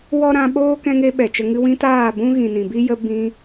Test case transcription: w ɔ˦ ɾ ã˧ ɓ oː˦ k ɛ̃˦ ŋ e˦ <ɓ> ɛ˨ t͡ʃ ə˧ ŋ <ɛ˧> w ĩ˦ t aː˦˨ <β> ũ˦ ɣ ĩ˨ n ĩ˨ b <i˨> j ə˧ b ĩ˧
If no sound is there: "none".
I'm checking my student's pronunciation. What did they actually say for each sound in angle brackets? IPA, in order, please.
ɓ, ɨ˧, b, i˦

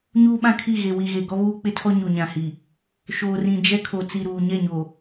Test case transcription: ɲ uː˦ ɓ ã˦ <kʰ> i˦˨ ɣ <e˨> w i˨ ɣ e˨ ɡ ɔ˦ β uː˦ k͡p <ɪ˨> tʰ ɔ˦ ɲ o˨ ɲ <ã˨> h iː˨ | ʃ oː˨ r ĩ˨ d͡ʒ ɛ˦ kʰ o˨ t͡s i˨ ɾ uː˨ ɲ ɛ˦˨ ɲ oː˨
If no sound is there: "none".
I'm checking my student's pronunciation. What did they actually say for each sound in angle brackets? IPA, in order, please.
kʰ, e˨, ɪ˦, ã˨

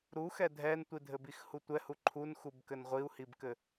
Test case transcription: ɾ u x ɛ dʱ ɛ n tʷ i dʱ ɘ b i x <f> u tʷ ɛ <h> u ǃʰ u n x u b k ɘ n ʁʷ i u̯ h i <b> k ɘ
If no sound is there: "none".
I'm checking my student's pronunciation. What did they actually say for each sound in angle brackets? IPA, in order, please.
h, h, b

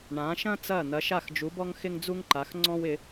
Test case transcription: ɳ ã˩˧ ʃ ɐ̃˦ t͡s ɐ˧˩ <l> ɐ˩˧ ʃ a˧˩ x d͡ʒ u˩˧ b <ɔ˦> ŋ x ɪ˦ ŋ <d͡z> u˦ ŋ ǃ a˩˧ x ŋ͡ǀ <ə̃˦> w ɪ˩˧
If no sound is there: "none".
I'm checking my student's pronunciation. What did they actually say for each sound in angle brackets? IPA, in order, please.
n̪, ɔ˦, d͡z, ɔ̃˦

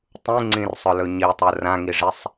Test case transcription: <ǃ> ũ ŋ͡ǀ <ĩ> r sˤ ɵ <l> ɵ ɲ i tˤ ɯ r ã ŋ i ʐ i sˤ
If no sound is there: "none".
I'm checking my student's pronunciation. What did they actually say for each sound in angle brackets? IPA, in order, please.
tˤ, ĩ, l

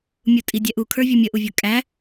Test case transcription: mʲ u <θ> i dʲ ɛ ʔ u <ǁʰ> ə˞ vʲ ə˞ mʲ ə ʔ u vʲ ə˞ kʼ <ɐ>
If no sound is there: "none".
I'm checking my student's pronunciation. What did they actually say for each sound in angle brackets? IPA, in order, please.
tʼ, kʰ, æ

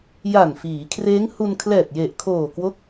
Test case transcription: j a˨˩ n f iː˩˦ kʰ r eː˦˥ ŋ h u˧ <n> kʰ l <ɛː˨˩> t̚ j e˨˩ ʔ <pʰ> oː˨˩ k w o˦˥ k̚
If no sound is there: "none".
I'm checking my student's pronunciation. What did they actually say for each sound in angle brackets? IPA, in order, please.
n, ɛː˨˩, kʰ

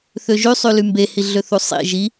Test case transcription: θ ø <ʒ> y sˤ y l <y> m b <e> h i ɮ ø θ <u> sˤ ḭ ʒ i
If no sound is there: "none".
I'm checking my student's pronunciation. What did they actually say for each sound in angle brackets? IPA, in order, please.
ʒ, y, e, u

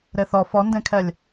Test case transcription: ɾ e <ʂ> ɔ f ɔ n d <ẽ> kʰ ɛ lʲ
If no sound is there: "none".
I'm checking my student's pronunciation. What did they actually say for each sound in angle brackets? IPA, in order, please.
θ, ẽ

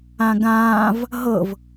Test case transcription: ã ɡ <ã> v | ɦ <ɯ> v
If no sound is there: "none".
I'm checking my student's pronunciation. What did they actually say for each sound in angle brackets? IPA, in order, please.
ãː, ɤ

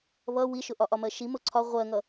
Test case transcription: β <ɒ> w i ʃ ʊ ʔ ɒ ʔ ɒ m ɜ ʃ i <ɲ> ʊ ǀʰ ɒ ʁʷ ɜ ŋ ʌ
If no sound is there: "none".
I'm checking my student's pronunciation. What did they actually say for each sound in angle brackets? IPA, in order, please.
ʌ, m

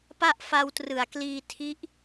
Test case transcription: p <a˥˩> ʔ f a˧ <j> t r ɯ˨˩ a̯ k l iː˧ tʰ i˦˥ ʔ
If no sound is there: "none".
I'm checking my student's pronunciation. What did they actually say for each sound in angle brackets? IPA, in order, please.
a˥˩, w

